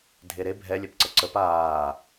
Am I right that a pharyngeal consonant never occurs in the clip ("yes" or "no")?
yes